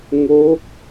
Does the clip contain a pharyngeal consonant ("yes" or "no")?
no